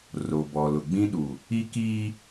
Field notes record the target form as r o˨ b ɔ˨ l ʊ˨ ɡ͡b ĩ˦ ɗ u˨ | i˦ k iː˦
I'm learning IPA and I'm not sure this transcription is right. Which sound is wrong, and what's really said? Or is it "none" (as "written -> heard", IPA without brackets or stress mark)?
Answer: none